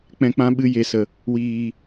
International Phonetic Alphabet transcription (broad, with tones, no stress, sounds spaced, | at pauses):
k͡p ɛ̃˧ k͡p ã˦ ɓ ɨ˧ j e˨ s ə˨ | w iː˨